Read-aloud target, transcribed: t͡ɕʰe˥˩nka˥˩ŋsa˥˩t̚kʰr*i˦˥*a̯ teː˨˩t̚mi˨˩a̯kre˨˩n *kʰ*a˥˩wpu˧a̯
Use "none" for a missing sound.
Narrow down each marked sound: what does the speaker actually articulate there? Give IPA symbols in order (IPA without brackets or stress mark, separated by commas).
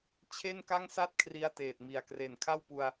i˧, kʰ